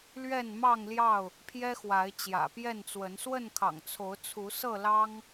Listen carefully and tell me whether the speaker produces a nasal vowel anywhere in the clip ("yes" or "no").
no